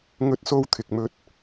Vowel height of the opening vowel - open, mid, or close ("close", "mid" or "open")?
mid